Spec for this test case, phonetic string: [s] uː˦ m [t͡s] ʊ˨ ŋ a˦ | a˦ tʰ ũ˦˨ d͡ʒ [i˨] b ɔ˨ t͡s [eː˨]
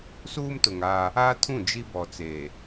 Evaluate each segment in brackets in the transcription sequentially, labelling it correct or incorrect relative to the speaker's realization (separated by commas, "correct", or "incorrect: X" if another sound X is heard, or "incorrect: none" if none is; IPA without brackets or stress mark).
correct, incorrect: t, incorrect: i˦, incorrect: e˨